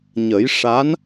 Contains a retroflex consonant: yes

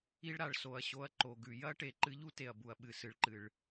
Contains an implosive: yes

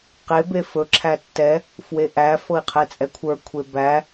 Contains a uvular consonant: yes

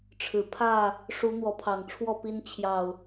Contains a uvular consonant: no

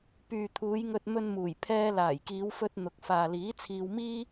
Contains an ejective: no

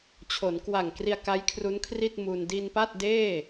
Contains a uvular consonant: no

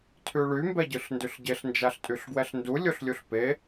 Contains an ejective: yes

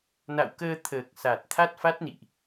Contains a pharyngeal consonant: no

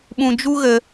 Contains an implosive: yes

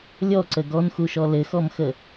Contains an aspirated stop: no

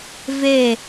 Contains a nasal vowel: no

